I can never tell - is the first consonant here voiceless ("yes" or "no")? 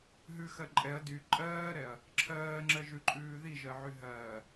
no